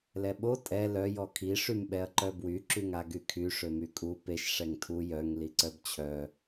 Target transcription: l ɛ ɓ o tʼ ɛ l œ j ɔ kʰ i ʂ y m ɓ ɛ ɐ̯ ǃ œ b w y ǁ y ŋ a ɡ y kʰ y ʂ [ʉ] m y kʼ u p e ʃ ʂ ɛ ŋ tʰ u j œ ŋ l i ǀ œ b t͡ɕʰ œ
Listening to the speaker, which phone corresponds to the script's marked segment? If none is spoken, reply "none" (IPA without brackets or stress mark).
ø